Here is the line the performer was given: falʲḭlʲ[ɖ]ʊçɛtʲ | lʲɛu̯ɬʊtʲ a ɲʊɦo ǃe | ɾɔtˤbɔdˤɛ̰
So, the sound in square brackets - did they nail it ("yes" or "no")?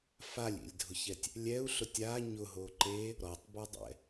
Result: no